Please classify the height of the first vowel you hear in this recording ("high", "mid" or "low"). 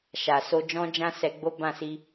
low